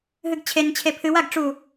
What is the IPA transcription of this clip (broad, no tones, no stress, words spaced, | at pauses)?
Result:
ɦɨɡt͡ɕʰent͡ɕʰe pʰɨwaɡ ʈ͡ʂu